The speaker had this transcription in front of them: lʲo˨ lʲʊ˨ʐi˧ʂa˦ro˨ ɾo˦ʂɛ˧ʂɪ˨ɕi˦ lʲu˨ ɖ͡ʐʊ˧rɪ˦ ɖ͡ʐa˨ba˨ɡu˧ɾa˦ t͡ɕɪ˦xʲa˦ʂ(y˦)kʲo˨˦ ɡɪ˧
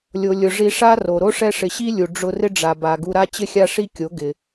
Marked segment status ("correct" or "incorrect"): incorrect